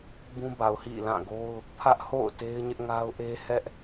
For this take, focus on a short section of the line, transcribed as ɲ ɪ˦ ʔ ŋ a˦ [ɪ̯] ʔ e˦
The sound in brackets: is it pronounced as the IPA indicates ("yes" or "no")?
no